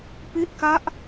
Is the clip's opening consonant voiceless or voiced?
voiceless